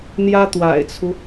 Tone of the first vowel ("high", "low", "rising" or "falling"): high